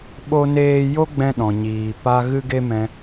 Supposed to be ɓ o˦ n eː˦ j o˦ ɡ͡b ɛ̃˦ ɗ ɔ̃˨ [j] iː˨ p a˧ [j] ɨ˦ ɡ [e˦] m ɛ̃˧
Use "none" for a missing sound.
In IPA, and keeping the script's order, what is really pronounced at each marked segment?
ɲ, ɣ, e˦

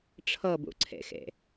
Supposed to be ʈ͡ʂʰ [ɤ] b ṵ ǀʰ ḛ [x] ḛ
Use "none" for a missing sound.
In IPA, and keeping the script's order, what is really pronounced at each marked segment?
ɤ, x

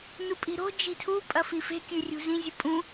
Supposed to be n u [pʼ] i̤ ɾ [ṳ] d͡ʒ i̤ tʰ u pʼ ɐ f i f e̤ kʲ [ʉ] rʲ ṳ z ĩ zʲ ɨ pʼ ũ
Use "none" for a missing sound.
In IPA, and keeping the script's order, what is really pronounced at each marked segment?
pʼ, o̤, ʉ

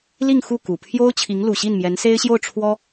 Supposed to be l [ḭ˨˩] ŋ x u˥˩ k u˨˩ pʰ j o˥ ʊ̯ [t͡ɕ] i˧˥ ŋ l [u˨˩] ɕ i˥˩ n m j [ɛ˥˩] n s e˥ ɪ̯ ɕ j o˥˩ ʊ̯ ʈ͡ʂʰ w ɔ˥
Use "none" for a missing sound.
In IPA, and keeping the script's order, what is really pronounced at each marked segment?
i˥˧, t͡ɕʰ, u˨˩, ɛ˧˥

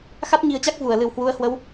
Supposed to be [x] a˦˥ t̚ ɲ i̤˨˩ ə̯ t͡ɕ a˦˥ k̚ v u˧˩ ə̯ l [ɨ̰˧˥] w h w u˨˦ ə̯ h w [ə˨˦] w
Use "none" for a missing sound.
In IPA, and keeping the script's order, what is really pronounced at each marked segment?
x, ɨ˧˩, ə˨˦

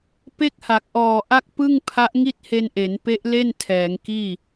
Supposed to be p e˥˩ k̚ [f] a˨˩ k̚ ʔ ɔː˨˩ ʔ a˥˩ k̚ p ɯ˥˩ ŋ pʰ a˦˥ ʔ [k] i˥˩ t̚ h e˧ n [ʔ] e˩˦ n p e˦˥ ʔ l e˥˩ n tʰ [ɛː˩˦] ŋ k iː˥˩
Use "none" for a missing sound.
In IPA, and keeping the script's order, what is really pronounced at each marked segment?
h, ŋ, ʔ, ɛː˩˦

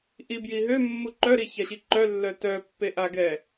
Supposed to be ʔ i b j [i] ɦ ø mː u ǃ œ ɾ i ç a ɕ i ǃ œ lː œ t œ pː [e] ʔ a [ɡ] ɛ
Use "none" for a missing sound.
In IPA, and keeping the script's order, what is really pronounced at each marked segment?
i, e, ɡ

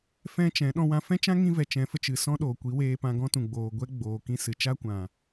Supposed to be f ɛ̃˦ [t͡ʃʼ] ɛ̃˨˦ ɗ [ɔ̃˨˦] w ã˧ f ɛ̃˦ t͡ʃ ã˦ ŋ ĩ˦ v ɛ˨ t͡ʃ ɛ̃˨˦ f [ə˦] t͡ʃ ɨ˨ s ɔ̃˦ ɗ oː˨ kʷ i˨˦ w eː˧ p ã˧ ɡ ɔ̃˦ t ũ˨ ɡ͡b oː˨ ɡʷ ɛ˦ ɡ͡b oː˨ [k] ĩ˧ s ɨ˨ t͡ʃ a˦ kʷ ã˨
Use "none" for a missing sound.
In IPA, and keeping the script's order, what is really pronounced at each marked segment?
t͡ʃ, ɔ̃˧, ə˧, k

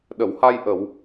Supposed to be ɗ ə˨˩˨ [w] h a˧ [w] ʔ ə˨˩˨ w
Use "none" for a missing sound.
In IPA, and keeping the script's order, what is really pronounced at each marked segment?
w, j

